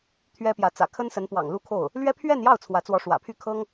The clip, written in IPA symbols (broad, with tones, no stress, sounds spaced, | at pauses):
t̪ʰ ɥ ɛ˥ p j ä˧˥ t͡s ä̰˨˩ kʰ ə˥ n s ə˧˥ n p w ɑ̰˨˩ ŋ l u˥ kʰ o˥˩ ʊ̯ | l ɥ ɛ˥ pʰ ɥ ɛ˥˧ n j ɑ˥˩ ʊ̯ t͡sʰ w ä˧˥ t͡s w ɔ˧˥ ʂ w ä̰˨˩ pʰ y˥˩ kʰ ɤ˥ ŋ